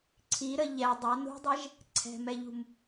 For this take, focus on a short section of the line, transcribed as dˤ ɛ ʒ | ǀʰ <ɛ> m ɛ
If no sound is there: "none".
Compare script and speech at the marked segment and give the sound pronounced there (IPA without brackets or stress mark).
ɛ̤